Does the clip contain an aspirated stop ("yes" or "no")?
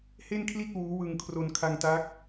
yes